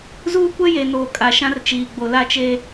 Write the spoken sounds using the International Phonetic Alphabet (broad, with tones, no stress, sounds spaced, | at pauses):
z uː˦ kʷ ɛ˦ j e˨ n oː˨ kʼ a˨ ʃ ã˦ r t͡ʃ iː˨ ɡ͡b o˨ l a˦ t͡ʃ e˦